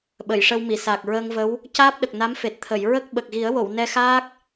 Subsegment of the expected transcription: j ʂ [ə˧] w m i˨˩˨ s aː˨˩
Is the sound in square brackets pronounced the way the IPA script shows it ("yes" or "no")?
yes